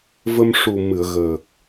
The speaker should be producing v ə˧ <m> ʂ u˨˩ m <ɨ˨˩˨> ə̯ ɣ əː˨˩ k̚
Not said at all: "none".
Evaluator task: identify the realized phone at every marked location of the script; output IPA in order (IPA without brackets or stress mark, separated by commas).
m, ɨ˨˩˨